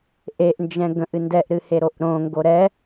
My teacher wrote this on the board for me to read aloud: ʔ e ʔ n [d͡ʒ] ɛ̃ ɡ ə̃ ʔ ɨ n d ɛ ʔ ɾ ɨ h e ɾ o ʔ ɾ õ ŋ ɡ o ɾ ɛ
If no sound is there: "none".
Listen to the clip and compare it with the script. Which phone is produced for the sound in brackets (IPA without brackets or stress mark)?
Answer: d͡ʒ